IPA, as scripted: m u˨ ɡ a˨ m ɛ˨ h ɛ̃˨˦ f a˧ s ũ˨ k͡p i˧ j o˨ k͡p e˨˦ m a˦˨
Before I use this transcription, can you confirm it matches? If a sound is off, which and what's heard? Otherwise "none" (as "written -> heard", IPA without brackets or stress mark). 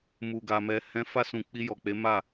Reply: o˨ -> ɔ˨